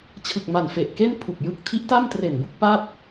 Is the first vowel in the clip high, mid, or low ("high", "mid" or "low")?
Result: high